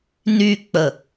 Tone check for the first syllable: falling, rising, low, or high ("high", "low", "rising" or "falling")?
falling